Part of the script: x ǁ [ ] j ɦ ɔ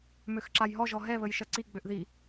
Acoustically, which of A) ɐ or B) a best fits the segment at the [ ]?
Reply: B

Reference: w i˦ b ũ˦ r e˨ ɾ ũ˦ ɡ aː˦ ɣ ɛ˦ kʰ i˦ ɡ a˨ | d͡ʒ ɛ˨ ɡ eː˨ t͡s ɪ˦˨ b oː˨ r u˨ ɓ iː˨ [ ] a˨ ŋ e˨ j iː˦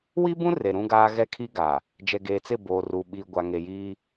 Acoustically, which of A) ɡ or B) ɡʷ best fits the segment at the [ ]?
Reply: B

